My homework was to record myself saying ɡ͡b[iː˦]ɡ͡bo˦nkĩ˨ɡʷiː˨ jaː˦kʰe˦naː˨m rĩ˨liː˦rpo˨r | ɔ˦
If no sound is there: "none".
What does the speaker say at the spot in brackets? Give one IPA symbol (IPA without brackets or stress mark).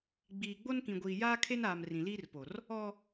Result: iː˨